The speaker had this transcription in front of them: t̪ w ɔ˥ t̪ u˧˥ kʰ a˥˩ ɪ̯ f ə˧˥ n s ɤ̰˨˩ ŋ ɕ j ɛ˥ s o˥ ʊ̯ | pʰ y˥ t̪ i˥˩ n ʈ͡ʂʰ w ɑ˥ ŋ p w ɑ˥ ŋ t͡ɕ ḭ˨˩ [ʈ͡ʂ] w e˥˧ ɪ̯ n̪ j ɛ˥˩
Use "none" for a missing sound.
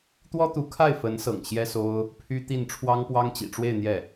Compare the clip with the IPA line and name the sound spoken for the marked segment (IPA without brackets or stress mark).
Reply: ʈ͡ʂ